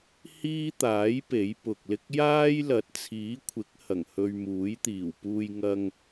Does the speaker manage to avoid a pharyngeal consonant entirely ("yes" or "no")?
yes